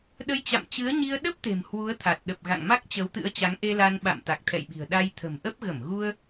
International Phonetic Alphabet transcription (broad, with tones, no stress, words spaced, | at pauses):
ɗə˧jt͡ɕa̰˧˨mt͡ɕɨ˨˦ə̯ɲi˧ə̯ ɗə˦˥p̚ t̪e̤˨˩mhwu˨˦ə̯t̪ʰa˨˩t̚ ɗə˨˩p̚ɣa̰˧˨ŋma˦˥k̚ t͡ɕə˨˦wt̪ɨ̰˧˥ə̯ t͡ɕa˨˦ŋʔe˧la˧nɓa̰˧˨m t̪a˨˩k̚t̪ʰɛ̰˧˨jɓi̤˨˩ə̯ɗa˧j t̪ʰə̤˨˩mʔə˦˥p̚ ɣə˧˩mɣu˧ə̯